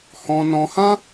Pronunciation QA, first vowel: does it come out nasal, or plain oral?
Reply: nasal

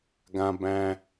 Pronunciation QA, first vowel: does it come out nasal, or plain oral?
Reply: nasal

